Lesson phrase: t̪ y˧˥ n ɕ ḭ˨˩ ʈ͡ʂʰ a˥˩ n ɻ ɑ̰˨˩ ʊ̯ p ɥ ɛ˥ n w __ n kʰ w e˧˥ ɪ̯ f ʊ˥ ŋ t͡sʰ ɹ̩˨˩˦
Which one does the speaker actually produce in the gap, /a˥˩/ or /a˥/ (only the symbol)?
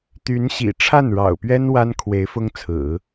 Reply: a˥